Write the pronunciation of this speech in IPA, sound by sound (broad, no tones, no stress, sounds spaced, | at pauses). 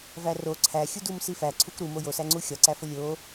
v æ r o ǀʰ æ xʲ u d u m s i f æ ǀʰ u k ɾ u m o j o s æ ŋ͡ǀ u xʲ ɒ ǀ æ f o lʲ o